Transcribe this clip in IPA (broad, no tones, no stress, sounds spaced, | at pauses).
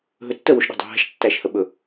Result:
ɦ ɵ tː ə w o ʃ ɗ ɛ̤ dˤ æ̤ ɦ æ̤ ʃ tː æ ʃ h ə ɓ ɵ